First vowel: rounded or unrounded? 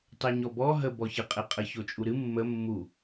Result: unrounded